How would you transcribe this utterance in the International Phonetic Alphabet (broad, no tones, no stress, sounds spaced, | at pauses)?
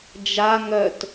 d͡ʒ a ŋ œ t